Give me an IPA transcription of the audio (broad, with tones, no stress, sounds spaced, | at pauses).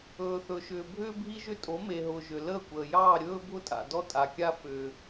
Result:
ɵː˨ θ ɵ˨ ʃ ʏː˨ bʱ ʏː˦ bʱ i˦ ʒ ʏ˦ tʼ o˨˦ m e˨ ɦ ʊː˨ ʒ ʏ˨ l əː˦˨ kʷ əː˨ j ɑː˦˨ ɾʲ ɵː˦ bʱ ʊ˦ tʼ a̰˨ d ɔ˦ tʼ a˨ kʲ a˦ f ʏː˦